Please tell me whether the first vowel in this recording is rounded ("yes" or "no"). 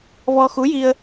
yes